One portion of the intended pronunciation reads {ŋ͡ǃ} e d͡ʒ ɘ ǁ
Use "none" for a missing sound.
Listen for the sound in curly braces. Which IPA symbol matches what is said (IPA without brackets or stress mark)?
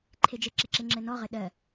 ǃʰ